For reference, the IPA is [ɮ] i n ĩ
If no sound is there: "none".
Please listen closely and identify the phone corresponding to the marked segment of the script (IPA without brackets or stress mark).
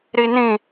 ɾ